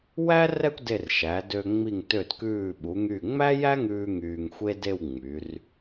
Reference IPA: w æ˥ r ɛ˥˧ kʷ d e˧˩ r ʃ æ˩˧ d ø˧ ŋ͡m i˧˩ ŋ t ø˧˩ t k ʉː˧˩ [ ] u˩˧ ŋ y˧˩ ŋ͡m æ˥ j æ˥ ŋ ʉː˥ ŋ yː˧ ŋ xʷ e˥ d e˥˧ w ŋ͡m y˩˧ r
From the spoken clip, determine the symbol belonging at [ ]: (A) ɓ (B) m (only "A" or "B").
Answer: A